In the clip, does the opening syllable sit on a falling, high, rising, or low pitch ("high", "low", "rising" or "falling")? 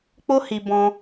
high